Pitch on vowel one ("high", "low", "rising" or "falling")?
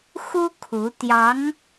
high